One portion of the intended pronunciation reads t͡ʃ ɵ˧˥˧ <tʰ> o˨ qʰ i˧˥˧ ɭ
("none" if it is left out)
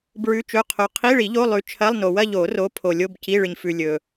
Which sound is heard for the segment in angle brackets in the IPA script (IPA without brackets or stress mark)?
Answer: qʰ